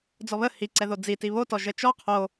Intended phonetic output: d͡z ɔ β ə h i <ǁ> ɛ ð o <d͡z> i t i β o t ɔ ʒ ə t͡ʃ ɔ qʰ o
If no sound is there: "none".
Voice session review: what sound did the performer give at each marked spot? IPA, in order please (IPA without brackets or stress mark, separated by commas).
ǀ, d͡z